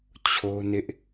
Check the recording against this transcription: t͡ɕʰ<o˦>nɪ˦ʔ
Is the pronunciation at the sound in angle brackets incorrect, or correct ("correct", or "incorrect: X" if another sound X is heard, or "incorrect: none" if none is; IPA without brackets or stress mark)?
correct